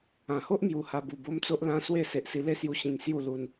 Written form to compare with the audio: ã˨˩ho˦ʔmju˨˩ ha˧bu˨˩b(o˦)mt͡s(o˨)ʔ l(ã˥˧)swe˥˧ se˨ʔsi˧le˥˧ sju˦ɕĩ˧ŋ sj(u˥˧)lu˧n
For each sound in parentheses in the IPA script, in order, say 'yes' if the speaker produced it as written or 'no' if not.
yes, no, no, yes

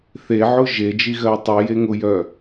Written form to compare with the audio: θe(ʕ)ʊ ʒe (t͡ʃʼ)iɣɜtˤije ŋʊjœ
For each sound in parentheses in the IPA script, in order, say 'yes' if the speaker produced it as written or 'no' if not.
yes, no

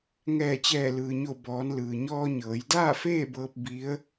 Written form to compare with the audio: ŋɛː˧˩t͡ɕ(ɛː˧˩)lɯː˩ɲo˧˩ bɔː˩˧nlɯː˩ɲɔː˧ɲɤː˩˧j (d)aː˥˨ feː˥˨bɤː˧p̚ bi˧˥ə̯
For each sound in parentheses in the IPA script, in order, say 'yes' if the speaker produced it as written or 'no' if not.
yes, yes

